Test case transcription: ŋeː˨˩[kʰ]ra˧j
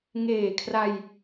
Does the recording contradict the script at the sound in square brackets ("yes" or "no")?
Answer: no